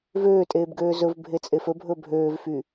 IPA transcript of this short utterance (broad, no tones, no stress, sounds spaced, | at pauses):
v øː tʼ eː b ɡ øː z ɵ v bʱ e t͡sʼ e f ɵ bʱ ɵ bʱ øː v f y